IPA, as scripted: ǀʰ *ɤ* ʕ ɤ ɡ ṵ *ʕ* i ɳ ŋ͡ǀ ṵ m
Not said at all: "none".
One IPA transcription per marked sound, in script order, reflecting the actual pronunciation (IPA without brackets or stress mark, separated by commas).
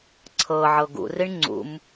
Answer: ɤ, r